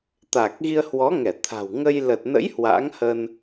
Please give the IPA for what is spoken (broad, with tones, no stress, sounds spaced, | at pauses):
t̪ a˨˩ k̚ ɣ i˧ ə̯ h w ɔ˨˦ ŋ ɛ˧˩ t̪ʰ a̤˨˩ w ŋ ə˧ j l ə˨˩ t̚ n ə̰˧˥ j h w a̰˧˥ ŋ h ə˧ n